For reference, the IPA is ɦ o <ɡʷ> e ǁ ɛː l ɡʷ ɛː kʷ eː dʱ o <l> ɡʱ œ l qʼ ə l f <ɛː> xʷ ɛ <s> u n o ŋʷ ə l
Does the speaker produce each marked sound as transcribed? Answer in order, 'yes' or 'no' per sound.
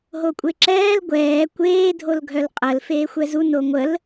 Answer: no, yes, no, no

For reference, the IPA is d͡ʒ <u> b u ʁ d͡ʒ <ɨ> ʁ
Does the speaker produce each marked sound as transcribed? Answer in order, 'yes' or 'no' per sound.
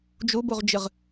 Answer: yes, yes

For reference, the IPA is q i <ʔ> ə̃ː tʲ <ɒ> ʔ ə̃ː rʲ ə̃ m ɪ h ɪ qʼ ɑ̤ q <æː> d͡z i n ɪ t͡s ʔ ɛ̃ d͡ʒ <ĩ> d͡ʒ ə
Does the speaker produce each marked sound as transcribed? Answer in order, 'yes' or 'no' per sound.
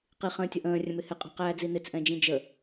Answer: no, yes, yes, yes

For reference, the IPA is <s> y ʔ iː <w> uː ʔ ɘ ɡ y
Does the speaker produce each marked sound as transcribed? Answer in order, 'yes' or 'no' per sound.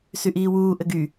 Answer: yes, yes

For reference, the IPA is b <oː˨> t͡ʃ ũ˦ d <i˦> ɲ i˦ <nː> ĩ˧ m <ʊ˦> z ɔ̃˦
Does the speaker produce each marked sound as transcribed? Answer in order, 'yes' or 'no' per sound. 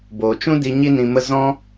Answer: yes, no, no, no

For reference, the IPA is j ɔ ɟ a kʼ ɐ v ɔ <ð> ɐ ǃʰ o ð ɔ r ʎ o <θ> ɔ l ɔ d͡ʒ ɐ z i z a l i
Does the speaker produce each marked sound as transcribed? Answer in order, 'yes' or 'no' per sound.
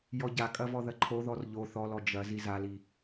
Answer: yes, yes

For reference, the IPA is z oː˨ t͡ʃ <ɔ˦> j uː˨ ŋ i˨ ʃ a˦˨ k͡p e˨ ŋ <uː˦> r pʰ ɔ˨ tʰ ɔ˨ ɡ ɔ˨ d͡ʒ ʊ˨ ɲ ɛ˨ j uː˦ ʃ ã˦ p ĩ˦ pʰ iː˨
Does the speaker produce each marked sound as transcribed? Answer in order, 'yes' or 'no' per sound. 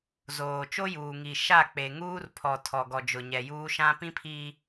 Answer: no, yes

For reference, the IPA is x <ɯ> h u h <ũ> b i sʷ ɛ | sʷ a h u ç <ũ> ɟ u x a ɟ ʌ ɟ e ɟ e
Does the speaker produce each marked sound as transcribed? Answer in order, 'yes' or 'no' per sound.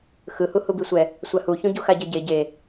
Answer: yes, no, yes

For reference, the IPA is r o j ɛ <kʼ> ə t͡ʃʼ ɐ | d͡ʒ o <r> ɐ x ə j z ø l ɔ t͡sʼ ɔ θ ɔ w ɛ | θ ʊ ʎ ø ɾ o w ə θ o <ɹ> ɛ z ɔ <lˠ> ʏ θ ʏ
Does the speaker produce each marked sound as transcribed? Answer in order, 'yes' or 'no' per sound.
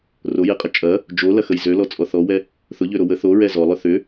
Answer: no, no, yes, yes

